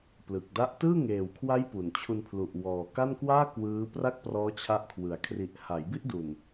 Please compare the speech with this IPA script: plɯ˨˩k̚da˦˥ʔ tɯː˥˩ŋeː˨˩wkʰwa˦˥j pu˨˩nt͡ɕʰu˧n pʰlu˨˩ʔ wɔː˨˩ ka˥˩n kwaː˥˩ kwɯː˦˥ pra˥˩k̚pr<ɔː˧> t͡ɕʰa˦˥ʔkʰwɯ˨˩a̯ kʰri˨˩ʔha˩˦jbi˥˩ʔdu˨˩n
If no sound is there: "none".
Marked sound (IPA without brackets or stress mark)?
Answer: ɔː˦˥